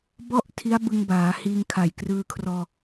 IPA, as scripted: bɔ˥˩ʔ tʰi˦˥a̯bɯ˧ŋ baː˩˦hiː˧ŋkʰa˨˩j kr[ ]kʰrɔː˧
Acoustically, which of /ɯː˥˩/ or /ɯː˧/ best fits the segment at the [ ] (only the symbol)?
ɯː˧